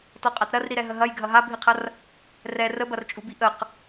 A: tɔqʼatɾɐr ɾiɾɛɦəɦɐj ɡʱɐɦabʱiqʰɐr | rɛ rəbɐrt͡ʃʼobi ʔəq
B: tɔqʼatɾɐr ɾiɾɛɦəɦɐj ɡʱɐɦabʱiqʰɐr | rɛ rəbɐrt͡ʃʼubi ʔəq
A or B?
B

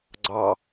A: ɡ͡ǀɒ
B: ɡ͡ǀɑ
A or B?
B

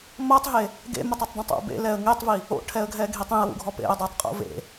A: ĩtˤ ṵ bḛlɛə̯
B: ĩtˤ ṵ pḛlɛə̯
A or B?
A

